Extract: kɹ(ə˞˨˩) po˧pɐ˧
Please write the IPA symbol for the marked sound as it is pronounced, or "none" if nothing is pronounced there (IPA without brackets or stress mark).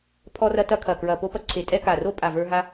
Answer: ɐ˨˩